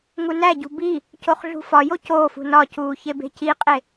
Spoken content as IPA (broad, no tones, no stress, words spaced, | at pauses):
ŋunæɟṳ bi | coχɮṳfɒjo coːfṳ nɒcuː çebe̤ciqʼe